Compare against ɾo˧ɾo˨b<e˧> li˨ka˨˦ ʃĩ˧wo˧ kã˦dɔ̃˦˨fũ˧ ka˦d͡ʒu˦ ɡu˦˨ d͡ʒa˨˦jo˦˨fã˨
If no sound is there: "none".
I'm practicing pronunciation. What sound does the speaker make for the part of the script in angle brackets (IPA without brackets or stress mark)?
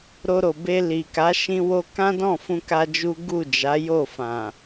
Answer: e˧